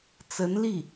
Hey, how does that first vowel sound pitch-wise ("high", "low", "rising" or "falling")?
rising